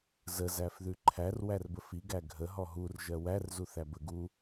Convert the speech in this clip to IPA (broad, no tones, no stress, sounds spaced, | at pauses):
z ə z æ f ð ʉ ǃʰ æ r w æ r b ə f i ɡ æ ɡʱ ə ɦ ɔ ɦ u r ʒ ɜ w æ r z u θ æ b ə ɡ u